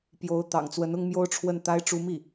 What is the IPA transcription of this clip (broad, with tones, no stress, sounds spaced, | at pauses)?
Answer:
p j o˧˥ ʊ̯ t̪ ɑ̰˨˩ ŋ t͡s w ə˧˥ n ʊ˥ ŋ m j o˥ ʊ̯ ʈ͡ʂʰ w ə˥˩ n t̪ a˥ ɪ̯ ʈ͡ʂ u˥ m i˥˩